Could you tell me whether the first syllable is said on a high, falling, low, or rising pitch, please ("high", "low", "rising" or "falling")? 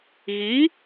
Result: rising